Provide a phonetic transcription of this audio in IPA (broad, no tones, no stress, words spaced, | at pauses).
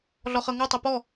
ɮɔχɤŋɔ tˤepɔ